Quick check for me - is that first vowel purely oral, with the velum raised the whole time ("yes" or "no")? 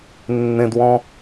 no